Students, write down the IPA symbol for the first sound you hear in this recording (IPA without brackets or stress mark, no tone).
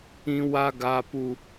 ĩ